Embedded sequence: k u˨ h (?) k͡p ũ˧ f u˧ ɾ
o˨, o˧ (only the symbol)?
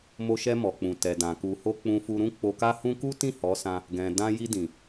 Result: o˧